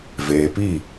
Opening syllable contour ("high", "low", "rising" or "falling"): low